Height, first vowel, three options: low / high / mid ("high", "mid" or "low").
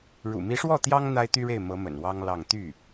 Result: high